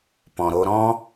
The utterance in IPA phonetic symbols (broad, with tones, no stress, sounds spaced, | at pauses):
p ɔ̃˨ ɾ o˧ ɾ ɔ̃˦